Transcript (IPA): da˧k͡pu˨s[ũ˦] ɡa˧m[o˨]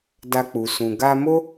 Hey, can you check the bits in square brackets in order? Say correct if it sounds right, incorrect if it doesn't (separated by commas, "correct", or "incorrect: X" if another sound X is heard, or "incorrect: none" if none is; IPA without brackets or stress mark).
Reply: incorrect: ũ˨, incorrect: o˦